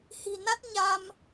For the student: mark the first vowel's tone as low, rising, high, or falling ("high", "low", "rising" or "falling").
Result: low